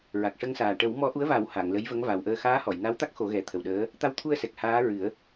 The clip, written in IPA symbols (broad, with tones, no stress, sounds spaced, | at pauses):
ɹ a˨˩ k̚ ʂ ə˧ ŋ s aː˨˩ ʈ ə˨˩˦ w m ɔ˧˥ ʔ u˧˥ ə̯ v a˨˩˦ w h a˨˩˨ ŋ l ə˧˥ j v ə˧˥ ŋ v a˨˩ w ʔ əː˧ x aː˧˥ h ɔ˨˩˨ j n a˧˥ w t̪ a˦˥ k̚ x o˨˩˦ ɣ ɛ˨˩˦ t̪ʰ ə˨˩ w ɗ əː˧˥ | t̪ a˧ w t̪ʰ u˧ ə̯ s ɛ˨˩ k̚ h aː˧˥ ɹ ɨ˨˩˦ ə̯